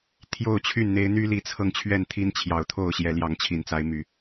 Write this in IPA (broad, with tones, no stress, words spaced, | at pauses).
t̪ʰjo˥˨ʊ̯t͡ɕʰy˥˨nn̪e˦ɪ̯ n̪y˦li˨˦t͡sʰɤ˧ŋ t͡ɕʰɥɛ˥˨nt̪ʰi˦nt͡ɕʰjɑ˨˩ʊ̯t̪ʰo˥˨ʊ̯ ɕjɛ˨˦ljɑ˨˦ŋt͡ɕʰi˨˩nt͡sa˨˦ɪ̯ my˨˩